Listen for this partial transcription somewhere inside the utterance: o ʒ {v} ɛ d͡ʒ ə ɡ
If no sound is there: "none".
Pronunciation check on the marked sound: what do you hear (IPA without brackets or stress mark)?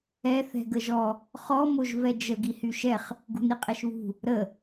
v